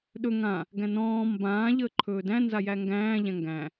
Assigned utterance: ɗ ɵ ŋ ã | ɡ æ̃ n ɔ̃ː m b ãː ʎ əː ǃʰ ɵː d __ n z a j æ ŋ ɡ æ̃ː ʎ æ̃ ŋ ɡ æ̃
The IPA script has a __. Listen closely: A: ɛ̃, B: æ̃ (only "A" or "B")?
B